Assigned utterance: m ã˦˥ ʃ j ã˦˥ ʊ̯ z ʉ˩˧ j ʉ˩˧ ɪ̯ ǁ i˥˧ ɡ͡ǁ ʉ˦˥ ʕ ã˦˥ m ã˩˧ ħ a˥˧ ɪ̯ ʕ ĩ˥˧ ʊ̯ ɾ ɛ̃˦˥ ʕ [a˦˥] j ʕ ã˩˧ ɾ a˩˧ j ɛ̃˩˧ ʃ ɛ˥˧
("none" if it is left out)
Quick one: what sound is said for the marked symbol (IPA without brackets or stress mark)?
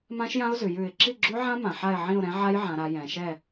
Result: a˦˥